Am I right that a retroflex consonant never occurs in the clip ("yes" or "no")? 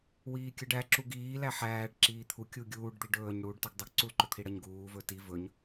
no